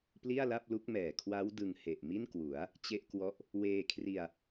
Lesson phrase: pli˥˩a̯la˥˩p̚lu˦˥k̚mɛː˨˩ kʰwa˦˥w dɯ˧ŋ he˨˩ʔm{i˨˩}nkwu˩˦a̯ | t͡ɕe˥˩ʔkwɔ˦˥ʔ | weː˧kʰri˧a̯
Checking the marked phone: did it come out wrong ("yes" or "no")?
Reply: yes